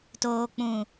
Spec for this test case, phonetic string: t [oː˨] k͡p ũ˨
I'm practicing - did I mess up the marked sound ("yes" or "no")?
no